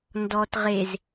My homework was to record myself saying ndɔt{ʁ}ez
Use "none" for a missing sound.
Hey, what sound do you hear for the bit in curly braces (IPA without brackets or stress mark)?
ʁ